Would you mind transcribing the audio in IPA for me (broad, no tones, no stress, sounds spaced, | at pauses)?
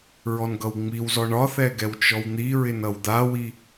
ɹ ɔ n ɡ ʌ w ŋ͡m i w z ɔ ɳ ɒ θ ɛ ɡ ɛ w t͡ʃ ɔ w n̪ i ɹ ɪ n ʌ w d̪ a w i